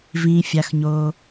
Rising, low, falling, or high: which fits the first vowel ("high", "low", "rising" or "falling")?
low